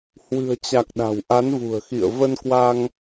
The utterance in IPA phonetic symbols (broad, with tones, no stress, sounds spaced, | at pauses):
h w ɨ̤˨˩ ə̯ t͡ɕ a˨˩ k̚ ɗ a̤˨˩ w ʔ a˨˦ n v ṳ˨˩ ə̯ x ḭ˧˨ ə̯ v ə˧ n k w a˧ ŋ